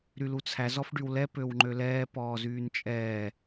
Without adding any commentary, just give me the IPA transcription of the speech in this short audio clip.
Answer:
ɾylut͡sʰæ zɔfɖywlɛ pøwŋ͡ǃølɛː pɔːzyːnt͡ʃʼɛː

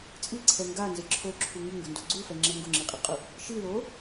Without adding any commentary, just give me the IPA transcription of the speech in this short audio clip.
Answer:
t͡sʼiǀʰɛ ŋɡanzɪ ǁʰoǁʰu ŋiŋɡʊndo ɡ͡ǀufɛŋ͡ǁɛ ŋɡʊŋ͡ǁiqʼɪqʼʊ | ʃilo

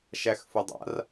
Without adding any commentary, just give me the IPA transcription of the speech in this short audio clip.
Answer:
ʃæxfudˤa̰r

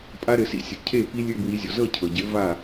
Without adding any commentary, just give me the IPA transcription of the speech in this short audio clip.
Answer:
pʼa˦˥ɾɘ˨˩˦sḭ˧˥˧sʲɤ˩ cʰe˥˩ pi˦˥lʲɘ˧˥˧bwi˨˦zʲɔ˩ zɤ˥˩cʰɤ˩ɟɘ˨˦ va˥˩

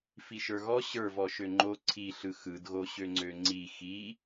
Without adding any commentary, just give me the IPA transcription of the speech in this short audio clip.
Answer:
fiʃə˞ɣɔ ɕə˞vɔ ʃøŋ͡ǃo ǀʰiɬɯ xɯdɣoɕø ŋ͡ǀøŋ͡ǀi xi

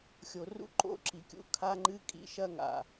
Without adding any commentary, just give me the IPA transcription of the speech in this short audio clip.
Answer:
xʲo˨rṵ˦ǃo̰˦ ǁi˨kʲṵ˦ kʰa˦ŋ͡ǃɨ˦kʼḭ˨˦ʃɐ˦ ŋa̰˨

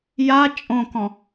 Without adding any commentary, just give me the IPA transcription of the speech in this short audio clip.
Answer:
ja t͡ʃʼõkɔ̃

